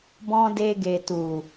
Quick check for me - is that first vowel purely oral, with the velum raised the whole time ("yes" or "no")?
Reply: no